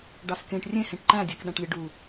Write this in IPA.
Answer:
ɖ ɑ s k ẽ ʈ rʲ ẽ h ẽ ʈ ǃ æ̃ dʲ æ k ɗ æ̃ ʈ lʲ ɯ ɖ u

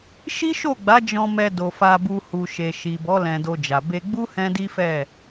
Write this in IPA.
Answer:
ʃ i˦ ʃ o˦˨ ɡ͡b a˨˦ d͡ʒ ɔ̃˧ m ɛ˧ d o˨ f a˧ b u˧ h u˨ ʃ e˨ ʃ i˨ b ɔ˨˦ l ɛ̃˧ d o˧ d͡ʒ a˨ b e˧ ɡ͡b u˦ h ɛ̃˦ d i˦ f ɛ˦˨

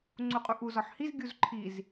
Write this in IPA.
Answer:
ŋ͡ǀ u qʼ u ʔ u z ɒ ħ h i z ɡʲ u z ǃʰ i z

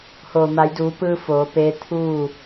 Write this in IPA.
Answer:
h oː˩ m a˩˧ j d uː˩˧ p ɯː˧ f oː˩˧ p eː˧˥ t̪ʰ uː˥˨

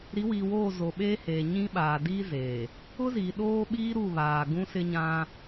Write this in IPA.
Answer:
ɾ i˨˦ w iː˨ w oː˦˨ z o˨ ɓ eː˦ h eː˨ ɲ ĩ˦ ɓ aː˨ d iː˦ z eː˨ | ʊ˦ z iː˨ ɗ oː˦ ɓ iː˦ ɾ u˦˨ β aː˨ ɡ ũ˦ s ɪ˦ ɲ ã˦

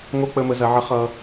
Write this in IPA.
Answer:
ŋ o˥ k͡p ə˧ m ə˩˧ z ɐ˩˧ ʕ ə˧˥ χ ʌ˧

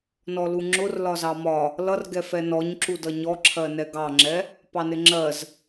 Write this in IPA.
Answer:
n ɔ l u ŋ͡ǁ ʊ r l ɒ z ɑ m ɒ | l ʌ r ɡ ɛ f ɛ n ɔ ɲ ǁ u d ʌ ɲ ɔ ǁʰ ɜ n ɛ ɡ ɑ ŋ͡ǁ ɛ | p ɑ n ɪ ŋ͡ǁ ɜ z

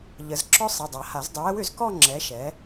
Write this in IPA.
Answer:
ʎ ə˨˩˦ z ǁ ɔ˥ sˤ i˩˧˩ dˤ a˨˩˦ h a˨˩˦ z dˤ ʏ˨˥ w ə˨˥ w ʏ˨˩˦ z k ɔ˥˧ ŋ͡ǁ ɛ˨˥ ʃ ɛ˨˥

